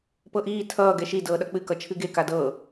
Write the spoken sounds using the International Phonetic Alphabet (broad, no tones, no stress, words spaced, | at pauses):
pɤʔiː tʰʌː ɡɛʃi dɤːɗʌk͡pɨ kʌt͡ʃʰɨɡe kadɤː